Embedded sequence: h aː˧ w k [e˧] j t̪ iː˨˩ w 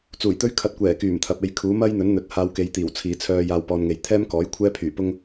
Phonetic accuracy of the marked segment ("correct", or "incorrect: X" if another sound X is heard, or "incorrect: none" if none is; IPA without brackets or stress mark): incorrect: e˨˧